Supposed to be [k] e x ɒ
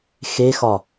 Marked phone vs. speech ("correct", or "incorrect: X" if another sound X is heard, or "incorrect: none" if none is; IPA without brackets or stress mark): incorrect: x